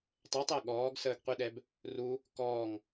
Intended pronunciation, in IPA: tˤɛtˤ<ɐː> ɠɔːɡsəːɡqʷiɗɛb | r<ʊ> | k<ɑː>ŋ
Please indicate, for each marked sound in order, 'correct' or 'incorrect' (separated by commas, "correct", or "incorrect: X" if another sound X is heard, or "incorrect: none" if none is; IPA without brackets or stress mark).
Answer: incorrect: əː, incorrect: u, incorrect: ɔː